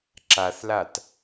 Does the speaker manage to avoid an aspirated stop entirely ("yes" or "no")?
yes